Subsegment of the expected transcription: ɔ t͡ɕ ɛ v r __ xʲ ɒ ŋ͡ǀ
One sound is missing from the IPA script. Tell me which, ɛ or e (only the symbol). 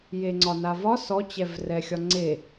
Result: ɛ